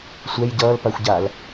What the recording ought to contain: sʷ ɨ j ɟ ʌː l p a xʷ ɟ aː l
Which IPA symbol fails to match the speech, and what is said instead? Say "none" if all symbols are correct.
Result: ɨ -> ɛ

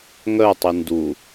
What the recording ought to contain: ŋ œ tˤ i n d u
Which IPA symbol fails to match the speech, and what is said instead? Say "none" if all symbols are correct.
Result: none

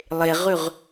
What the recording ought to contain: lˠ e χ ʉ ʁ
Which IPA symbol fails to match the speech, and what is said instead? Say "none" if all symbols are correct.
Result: χ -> ʁ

